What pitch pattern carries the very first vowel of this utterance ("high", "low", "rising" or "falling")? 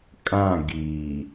falling